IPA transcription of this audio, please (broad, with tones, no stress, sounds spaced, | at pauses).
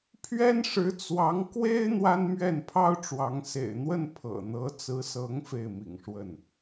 pʰ ɥ ɛ˥ n ʂ ɻ̩˧˥ t͡s w ɑ˧˥ ŋ k w e˥ ɪ̯ n̪ w a˥ n m ɥ ɛ˥˩ n pʰ ɑ˥ ʊ̯ ʈ͡ʂ w ɑ˧˥ ŋ s ḛ˨˩ ɪ̯ n̪ w ə˥˩ n pʰ ɤ̰˨˩ n̪ ɤ˧˥ t͡s ɹ̩˧˥ s ɤ˧˥ ŋ f e˥˩ ɪ̯ m ḭ˨˩ ŋ ʂ w ə˥˩ n